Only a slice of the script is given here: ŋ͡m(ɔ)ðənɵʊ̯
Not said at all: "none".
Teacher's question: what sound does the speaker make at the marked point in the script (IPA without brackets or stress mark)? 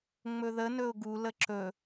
ɵ